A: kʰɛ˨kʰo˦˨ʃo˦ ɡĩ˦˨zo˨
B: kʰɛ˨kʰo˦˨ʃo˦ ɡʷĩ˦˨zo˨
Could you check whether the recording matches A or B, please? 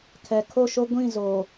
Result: B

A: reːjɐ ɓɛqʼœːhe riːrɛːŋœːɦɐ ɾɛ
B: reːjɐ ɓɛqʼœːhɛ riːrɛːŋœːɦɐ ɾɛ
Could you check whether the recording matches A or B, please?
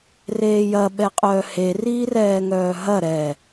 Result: A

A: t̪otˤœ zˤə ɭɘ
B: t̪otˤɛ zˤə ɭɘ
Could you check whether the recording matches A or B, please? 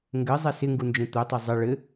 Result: A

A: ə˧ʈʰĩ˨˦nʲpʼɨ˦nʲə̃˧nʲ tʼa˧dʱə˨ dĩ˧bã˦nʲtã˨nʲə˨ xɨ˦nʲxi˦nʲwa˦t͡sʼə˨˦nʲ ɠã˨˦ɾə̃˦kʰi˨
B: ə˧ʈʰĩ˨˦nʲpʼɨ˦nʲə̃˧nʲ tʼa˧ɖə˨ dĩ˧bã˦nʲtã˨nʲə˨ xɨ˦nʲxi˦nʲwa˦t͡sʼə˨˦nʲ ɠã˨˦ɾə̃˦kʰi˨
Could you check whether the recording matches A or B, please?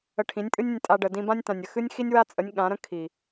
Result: B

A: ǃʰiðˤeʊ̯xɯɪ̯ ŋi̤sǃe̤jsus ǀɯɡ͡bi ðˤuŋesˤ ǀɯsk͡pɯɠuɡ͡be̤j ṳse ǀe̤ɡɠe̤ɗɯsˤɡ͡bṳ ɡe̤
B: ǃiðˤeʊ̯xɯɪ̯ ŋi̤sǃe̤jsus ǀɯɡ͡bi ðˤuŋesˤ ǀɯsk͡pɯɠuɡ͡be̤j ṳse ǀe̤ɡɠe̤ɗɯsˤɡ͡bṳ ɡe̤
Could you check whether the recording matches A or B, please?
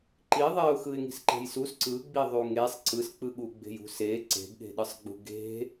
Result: B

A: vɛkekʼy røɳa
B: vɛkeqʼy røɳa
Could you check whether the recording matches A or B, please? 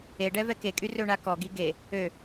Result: A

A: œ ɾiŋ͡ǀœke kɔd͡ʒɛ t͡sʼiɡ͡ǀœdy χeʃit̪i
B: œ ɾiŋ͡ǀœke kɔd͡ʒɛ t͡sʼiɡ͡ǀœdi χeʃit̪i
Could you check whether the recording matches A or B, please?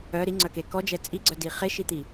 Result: B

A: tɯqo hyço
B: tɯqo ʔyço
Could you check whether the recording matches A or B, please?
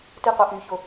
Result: B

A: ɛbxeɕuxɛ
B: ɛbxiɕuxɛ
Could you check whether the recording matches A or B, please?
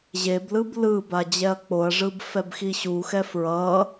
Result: B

